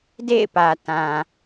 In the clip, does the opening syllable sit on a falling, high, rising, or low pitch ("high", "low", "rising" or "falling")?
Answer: falling